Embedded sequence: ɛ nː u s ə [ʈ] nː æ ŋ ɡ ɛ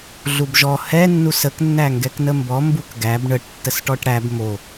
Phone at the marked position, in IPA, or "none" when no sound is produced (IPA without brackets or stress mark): k